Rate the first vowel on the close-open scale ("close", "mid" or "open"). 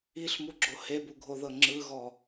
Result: close